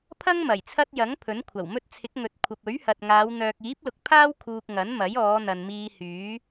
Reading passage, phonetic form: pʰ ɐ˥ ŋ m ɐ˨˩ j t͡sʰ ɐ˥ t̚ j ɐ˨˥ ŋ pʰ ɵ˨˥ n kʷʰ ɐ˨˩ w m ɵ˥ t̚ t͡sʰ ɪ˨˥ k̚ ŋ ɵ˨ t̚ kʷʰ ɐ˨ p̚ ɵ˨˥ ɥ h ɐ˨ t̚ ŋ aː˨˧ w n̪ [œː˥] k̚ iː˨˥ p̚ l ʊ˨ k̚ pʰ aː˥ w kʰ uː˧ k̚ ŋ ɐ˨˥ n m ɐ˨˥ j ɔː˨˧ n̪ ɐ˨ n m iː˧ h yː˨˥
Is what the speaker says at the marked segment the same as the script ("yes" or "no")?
no